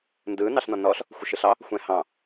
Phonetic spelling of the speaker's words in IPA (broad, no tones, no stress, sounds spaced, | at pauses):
n d ɯ n ɑ ɬ n ɔ n ɔ ɬ | xʷ ɯ ʃ ɯ ɬ ɑ | xʷ ɛ̃ h ɑ̃